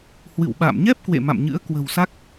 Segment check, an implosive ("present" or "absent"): present